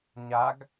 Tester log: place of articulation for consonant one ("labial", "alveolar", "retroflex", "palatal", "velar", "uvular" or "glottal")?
palatal